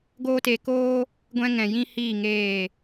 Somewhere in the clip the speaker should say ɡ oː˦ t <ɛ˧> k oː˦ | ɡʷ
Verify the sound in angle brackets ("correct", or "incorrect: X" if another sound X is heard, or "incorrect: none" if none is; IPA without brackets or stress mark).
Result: incorrect: e˧